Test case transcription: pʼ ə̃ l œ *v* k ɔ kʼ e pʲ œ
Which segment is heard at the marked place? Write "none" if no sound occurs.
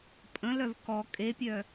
v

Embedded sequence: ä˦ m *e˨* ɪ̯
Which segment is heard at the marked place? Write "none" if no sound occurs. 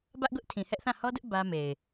e˨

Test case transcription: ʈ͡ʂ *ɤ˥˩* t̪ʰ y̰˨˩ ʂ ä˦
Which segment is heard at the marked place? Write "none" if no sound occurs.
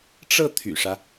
ɤ˥˩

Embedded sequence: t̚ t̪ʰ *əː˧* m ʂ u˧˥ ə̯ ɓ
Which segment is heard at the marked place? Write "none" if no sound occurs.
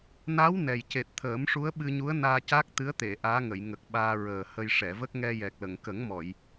əː˨˩˦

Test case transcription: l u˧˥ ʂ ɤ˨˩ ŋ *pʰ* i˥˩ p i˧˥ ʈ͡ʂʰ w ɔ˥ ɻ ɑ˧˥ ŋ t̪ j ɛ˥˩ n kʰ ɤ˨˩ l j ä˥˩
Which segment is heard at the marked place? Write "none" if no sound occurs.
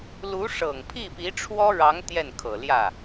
pʰ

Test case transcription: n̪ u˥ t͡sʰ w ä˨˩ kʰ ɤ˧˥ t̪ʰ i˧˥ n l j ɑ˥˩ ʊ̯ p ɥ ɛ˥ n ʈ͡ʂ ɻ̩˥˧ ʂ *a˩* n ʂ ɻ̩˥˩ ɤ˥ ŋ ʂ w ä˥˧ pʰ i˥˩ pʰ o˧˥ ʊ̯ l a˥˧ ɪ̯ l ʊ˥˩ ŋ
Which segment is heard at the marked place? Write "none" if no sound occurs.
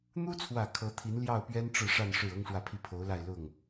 a˥˧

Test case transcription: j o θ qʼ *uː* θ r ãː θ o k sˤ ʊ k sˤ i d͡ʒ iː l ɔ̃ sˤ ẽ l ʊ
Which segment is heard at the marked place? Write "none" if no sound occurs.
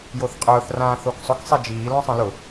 ʊː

